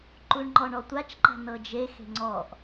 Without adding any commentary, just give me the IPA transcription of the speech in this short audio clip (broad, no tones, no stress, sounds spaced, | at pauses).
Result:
ǃ u ɳ ŋ͡ǃ ɔ ɳ ɔ tʷ a t͡ʃ ǃ a̤ n ɤ d͡ʒ e x e̤ ŋ͡ǀ ɔ ʔ